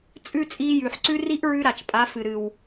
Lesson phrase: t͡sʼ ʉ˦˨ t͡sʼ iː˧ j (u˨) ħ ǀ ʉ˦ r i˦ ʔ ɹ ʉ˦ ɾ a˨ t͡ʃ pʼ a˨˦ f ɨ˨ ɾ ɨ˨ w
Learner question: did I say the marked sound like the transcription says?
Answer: no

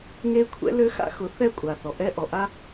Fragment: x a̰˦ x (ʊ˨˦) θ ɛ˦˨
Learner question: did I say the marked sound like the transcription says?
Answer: yes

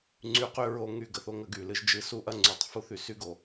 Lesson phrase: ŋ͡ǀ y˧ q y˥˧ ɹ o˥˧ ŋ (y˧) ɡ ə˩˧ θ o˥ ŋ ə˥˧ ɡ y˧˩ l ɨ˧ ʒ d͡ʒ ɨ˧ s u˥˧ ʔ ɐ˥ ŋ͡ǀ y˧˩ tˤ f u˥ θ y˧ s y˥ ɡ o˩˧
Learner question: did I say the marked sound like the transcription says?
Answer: yes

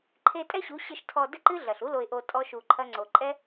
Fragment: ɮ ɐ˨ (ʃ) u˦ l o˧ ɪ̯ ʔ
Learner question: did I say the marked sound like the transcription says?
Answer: no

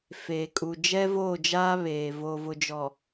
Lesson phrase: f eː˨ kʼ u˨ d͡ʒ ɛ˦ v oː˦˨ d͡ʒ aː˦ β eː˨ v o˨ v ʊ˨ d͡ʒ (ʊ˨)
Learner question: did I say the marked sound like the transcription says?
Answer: no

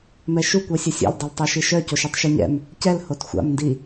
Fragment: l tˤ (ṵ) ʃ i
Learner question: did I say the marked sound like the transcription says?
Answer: no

